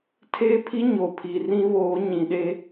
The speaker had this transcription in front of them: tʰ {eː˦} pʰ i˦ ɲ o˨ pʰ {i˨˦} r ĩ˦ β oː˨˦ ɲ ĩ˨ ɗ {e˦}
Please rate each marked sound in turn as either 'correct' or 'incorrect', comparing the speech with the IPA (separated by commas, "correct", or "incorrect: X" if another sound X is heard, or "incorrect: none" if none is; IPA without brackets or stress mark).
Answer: correct, incorrect: i˨, correct